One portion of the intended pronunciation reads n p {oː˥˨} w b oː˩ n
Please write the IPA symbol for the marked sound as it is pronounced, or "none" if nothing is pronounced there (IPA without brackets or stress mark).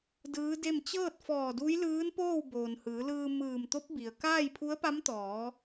oː˥˨